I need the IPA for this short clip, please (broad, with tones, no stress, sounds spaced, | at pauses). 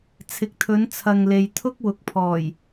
t͡sʰ ɪ˨ k̚ t̪ʰ ɵ˨˧ n t͡sʰ ɐ˨ ŋ l e˨ j t̪ʰ ʊ˥ k̚ w ʊ˨ k̚ pʰ ɔː˨˩ j